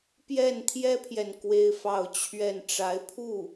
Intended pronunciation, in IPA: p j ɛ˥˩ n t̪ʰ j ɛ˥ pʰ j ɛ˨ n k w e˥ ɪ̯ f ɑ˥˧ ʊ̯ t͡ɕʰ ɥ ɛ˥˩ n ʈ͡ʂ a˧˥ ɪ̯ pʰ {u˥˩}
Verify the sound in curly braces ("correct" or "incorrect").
correct